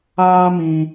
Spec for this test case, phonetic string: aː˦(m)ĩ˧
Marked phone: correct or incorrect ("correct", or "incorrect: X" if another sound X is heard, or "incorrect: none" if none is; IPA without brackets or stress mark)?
correct